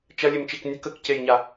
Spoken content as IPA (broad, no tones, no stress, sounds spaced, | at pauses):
t͡ʃ ɐ lʲ e m t͡ʃ e k nʲ ʊ k ə k c e j ɲ a